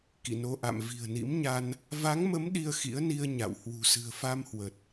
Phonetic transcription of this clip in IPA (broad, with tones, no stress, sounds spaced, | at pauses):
k ḭ˧˨ n o˧ ʔ a̰˧˨ m v i̤˨˩ ə̯ n ḭ˧˥ m ɲ a˧ n | v a˨˦ ŋ m ə˨˦ m ɗ i˧ ə̯ x ḭ˧˥ ə̯ n i˧ ə̯ ɲ a̰˧˨ w h w ṳ˨˩ s ɨ̤˨˩ ə̯ f a˧ m h w ə˨˩ t̚